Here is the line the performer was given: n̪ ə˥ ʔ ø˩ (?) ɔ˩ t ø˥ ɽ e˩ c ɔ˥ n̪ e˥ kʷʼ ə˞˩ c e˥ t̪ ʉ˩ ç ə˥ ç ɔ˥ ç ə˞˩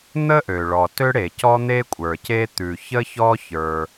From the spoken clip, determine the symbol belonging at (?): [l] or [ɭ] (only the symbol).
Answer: ɭ